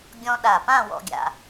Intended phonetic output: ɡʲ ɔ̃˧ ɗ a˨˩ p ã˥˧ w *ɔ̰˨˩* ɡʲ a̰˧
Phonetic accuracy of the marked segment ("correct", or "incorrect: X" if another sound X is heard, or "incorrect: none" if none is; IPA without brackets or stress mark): incorrect: ɔ̰˥